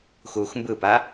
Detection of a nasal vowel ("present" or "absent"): absent